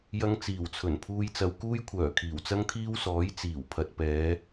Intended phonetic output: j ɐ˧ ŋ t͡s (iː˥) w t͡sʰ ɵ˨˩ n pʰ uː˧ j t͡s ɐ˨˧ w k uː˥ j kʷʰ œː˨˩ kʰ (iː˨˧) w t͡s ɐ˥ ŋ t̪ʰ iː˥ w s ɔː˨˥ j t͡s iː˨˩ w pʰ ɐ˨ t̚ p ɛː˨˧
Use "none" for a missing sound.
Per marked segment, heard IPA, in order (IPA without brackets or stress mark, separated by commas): iː˨˩, iː˨˩